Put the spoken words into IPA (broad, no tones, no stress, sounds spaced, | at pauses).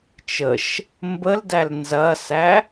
t͡ʃ ə ʃ | m b ə l d æ l n z ɐ s æ